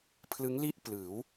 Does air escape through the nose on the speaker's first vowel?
no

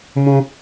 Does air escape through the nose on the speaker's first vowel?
yes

